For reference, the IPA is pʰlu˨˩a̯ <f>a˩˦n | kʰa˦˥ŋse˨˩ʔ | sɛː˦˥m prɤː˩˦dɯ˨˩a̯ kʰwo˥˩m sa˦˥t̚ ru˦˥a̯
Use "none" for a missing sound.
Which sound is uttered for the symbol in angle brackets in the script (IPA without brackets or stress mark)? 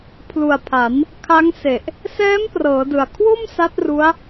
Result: pʰ